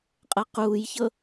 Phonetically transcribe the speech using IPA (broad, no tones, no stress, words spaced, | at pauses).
qʼɤquːjçɤ